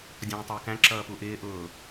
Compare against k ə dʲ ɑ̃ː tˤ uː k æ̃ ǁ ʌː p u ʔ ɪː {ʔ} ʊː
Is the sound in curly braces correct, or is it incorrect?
correct